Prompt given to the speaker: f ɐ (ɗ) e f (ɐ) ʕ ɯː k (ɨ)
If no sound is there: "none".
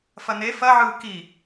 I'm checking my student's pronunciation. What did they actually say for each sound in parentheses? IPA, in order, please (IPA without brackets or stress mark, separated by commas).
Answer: n, ɐ, i